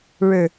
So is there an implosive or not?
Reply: no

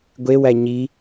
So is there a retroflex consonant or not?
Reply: no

